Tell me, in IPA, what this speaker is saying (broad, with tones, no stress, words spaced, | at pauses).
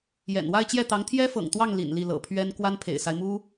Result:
jɛ̰˨˩n wa˥˧ɪ̯t͡ɕjɛ˥˩t̪ɑ˧˥ŋ t̪ʰjɛ˥fɤ̰˨˩ŋt̪wɑ˥˩ŋ lḭ˨˩nli˥˩ lɤ̰˨˩pʰɥɛ˥n kwa˥npʰḛ˨˩ɪ̯sa˦ɪ̯mu˥